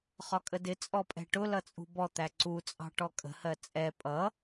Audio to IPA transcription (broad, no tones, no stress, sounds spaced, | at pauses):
χ ɒ kʼ ə d ɪ t͡sʼ ɔ pʼ ɛ̤ ʈ ʊ l ʌ t͡sʼ ṳ b ɔ t̪ æ ǀ u t͡sʼ ɑ̤ ʈ ɔ kʼ ə̤ h ɜ t͡sʼ ɛ pʼ ʌ